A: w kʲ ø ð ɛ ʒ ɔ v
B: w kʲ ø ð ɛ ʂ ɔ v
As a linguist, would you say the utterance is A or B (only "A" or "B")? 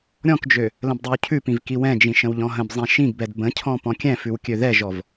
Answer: A